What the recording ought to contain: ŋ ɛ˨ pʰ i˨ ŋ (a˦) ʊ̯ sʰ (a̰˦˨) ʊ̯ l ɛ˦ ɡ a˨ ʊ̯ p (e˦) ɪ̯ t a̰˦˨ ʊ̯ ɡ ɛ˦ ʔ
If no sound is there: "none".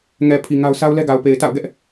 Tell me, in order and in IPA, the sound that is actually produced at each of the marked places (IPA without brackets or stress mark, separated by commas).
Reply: a˦, a˦, e˨